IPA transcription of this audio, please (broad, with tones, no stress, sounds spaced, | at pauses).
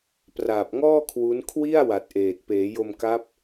p r aː˨˩ p̚ ŋ ɔː˥˩ kʰ w u˦˥ n kʰ w i˥˩ a̯ w a˨˩ t̚ ʔ eː˨˩ t̚ p eː˩˦ j o˧ m k a˦˥ p̚